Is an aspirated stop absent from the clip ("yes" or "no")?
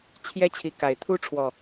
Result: no